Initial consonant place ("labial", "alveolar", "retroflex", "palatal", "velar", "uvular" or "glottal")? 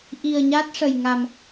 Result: glottal